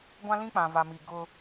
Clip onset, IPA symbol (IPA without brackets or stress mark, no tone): ɡʷ